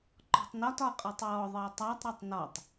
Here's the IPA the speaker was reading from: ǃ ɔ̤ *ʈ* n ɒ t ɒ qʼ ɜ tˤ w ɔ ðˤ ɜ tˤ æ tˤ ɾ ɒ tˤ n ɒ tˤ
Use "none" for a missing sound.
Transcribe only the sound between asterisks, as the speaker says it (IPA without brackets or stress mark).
tˤ